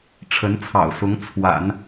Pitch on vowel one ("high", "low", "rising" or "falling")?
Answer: rising